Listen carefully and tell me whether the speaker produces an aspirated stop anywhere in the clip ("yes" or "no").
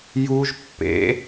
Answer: no